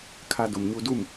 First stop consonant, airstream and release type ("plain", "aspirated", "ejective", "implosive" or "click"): aspirated